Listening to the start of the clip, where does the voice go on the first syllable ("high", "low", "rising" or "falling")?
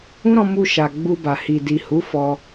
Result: high